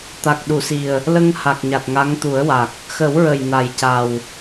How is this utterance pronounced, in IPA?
t̪ a˨˩ k̚ ɗ u˨˩˨ s i˨˩ ə̯ | l ə˧ ŋ h a˨˩ k̚ ɲ a˨˩ t̚ ŋ a˧˥ ŋ t̪ u˨˩˦ ə̯ w a˨˩ k̚ | x ə˨˩˦ w ɹ ə˨˩ j n a˨˩ j c a˨˩ w

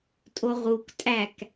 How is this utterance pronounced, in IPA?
tʼ o ʁ u k tʼ æ k

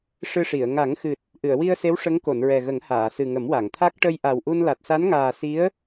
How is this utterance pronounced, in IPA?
ʂ ɨ˧ ʂ i˨˩˨ ə̯ ŋ a˨˩˦ ŋ x ɨ˨˩ t̚ | ʔ ɨ˨˩˨ ə̯ w i˧ ə̯ s e˧˥ w ʂ ə˧˥ ŋ k o˨˩˨ n ɹ ɛ˨˩ ɣ ə˨˩˦ ŋ h aː˨˩˨ s ɨ˨˩ ŋ ə˨˩˦ m w a˨˩˨ ŋ t̪ʰ a˦˥ k̚ ʈ ə˧ j ʔ a˨˩ w ʔ u˧ n l a˨˩ t̚ s a˧˥ n ŋ aː˨˩ s i˧˥ ə̯

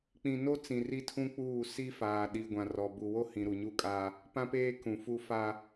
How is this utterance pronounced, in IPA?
k͡p ĩ˨ n o˦ t͡s ĩ˨ r i˦ tʰ ũ˦ k͡p uː˦˨ s i˦ f aː˨ ɗ i˨ ɡʷ ã˨ r ɔ˨ b u˨ w o˦ h ĩ˨ ɾ u˨ ɲ u˦ kʼ aː˦ | p ã˦ p eː˦ k ũ˨ f u˦ f a˦

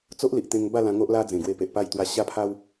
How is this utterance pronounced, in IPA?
t͡s o˦ ʔ l i˨ ʔ t̪ ẽ˧ ŋ b a˥˧ l ã˧ ŋ o˦ ʔ l a˦ d͡z ẽ˨˩ ɡ w e˧ p e˨ ʔ p a˥˧ j t̪ w a˧ ɕ a˥˧ pʰ a˦ w

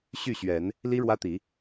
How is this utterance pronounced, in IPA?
ɕ y˥˨ ɕ ɥ ɛ˨˦ n | l i˦ ɻ w ä˦ t̪ i˨˦

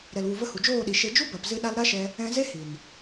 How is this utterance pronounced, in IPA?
ɾ ɛ˨ l w u˨ v ə˧ h u˨ d͡ʒ oː˦˨ ɗ i˨ ʃ e˧ d͡ʒ u˦ b a˨ p z ɨ˧ ɗ a˧ l ɾ a˦ ʃ ɛ˧ | ɛ̃˧ z e˦ h i˨ n

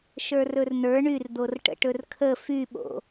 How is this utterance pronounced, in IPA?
ʃ ə˞ r ɵ r n ə˞ ɳ y r d̪ o r ʈ ə̰ ʈ ɵ r kʰ ə f y ɓ o̰

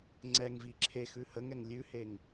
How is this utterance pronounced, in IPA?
ŋ͡ǀ ɛ ŋ v i ǁʰ e x ʉ h ə ŋ ɛ ŋ lʲ ʉ h e ŋ

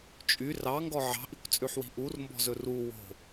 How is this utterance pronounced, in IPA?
t͡ʃʼ y r ɑ ŋ ɡ ɔ ʕ ɑ̤ ʔ i kʷ t͡sʼ ʉ ħ w i̤ ʔ u r m b ɔ̤ z ɵ r u w o̤

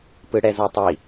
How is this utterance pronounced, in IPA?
p ɯ ɽ ɛ z ɔ tˤ i

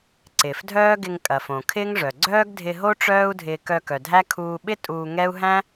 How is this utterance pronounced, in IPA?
ǀ ɪː˨ f dʱ œː˦ ɡ ɪ˧ ŋ kʼ ɐ˨ f õ˨ kʰ ɪː˦ ŋ ʐ œ˨ ɡ͡ǀ œː˦ ɡ dʱ ɪ˧ ɦ o˦ ʈ͡ʂ œː˦ u̯ dʱ ɪː˧ k œ˧ k œ˨ dʱ æ˦ kʰ uː˧ ɓ ɪ˦ tʼ uː˧ ŋ ɛ˦ u̯ ɦ æ̃˦

